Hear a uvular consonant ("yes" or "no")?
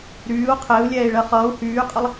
yes